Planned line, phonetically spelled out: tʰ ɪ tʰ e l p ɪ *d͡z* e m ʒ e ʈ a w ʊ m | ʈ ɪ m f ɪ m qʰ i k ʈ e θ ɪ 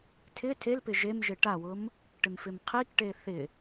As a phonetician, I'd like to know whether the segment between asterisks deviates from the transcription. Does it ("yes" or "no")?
yes